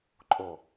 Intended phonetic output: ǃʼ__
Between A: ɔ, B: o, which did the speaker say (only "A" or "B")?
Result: B